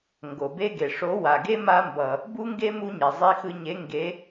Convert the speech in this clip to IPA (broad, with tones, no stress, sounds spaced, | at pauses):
ŋ ɡ o˨ b e˦ ɡ e˨ ʂ o˨˦ w a˨ ɡ e˦ m a˦ m b ʌ˨ | b u˦ ŋ ɡ e˦ m u˦ ɲ ɛ˨ zˤ i˧ x ɯ˧ ɲ e˨˦ ŋ ɡ e˨˦